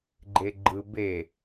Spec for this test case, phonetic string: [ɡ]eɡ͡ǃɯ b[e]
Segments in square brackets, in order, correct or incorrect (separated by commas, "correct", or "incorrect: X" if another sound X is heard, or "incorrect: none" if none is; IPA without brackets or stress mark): incorrect: ɡ͡ǃ, correct